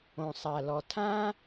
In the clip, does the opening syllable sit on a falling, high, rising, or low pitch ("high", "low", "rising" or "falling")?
low